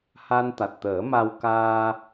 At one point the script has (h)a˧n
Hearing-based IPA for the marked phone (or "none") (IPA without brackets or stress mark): h